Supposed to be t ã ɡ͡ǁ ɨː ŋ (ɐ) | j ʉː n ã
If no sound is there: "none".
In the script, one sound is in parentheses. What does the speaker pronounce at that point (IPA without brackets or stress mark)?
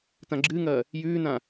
ɐː